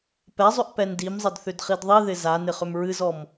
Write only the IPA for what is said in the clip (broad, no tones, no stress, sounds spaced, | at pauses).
p ɛ zˤ ʏ ʔ p ɛ n d i m zˤ ə d θ ʏ d χ i d ðˤ i ð ɪ z a n ɪ χ ʏ m ɹ ɨ z ɔ m